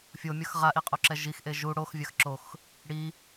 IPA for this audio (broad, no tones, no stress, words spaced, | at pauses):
fʲomʲʌx ʁaʔiqʼoǁɛ ʒixʔe ʒu ɽoxvʲax ǁox | ɽi